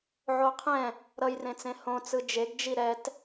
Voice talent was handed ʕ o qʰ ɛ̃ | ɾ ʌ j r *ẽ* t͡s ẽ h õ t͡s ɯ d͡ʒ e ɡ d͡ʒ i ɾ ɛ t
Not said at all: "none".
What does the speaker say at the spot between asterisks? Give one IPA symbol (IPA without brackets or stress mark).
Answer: ẽ